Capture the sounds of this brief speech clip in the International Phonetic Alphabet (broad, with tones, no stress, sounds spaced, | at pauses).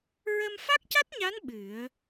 ɹ ə˧ m f a˦˥ k̚ c a˦˥ t̚ ɲ a˧˥ n ɓ ɨ˨˩˦ ə̯